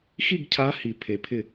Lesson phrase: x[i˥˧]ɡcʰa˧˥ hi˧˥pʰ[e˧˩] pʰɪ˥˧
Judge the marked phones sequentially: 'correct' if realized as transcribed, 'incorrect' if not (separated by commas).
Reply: correct, incorrect